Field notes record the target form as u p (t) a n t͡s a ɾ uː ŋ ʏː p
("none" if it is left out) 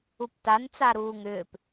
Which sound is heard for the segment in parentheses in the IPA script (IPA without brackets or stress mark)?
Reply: t